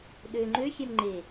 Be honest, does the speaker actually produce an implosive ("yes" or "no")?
yes